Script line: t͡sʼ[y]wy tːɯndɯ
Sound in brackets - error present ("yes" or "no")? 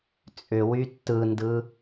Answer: yes